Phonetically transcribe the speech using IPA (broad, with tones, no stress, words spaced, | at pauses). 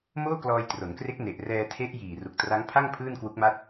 moː˥˩klɔː˧jtro˩˦nkre˦˥k̚ ne˨˩ʔ rɛː˧tʰe˦˥ʔjiː˨˩ ru˨˩k̚tra˦˥ŋpʰa˥˩ŋ pʰɯː˥˩nkwu˦˥k̚ma˥˩t̚